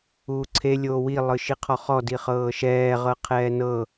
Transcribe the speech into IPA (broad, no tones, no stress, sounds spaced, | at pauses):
uː ǀʰ e lʲ oː w i lˠ ɯ ʃ i qʰ ɔ χ ɔ d i χ ɤː ʃ ɛː ʁ ɤ qʰ ɛː n ɤ